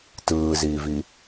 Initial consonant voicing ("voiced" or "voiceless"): voiceless